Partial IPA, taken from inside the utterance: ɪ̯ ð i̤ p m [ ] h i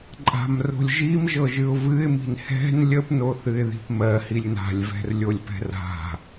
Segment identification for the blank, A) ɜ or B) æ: A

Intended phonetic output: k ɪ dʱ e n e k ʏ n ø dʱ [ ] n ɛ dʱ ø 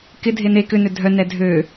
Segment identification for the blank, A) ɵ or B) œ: B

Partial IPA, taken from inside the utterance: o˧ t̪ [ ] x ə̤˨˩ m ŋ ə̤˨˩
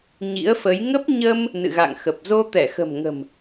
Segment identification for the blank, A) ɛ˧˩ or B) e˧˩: A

